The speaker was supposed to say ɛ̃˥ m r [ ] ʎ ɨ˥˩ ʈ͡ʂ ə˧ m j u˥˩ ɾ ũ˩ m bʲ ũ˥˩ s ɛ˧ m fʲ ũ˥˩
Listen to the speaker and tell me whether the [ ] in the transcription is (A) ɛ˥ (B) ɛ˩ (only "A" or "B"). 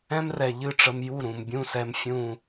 B